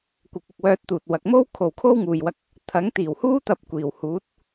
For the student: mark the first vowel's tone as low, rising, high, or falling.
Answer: rising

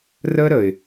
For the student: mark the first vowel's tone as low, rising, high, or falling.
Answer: high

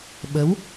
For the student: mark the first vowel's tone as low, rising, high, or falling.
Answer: rising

